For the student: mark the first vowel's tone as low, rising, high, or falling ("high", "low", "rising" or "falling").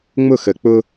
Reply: falling